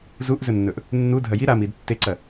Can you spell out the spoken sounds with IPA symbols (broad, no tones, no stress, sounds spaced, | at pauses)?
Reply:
z u ʔ z ɵ nː ɵ ʔ | nː u dʱ ɐ j i ɾ a m i d tː e ǀ ɐ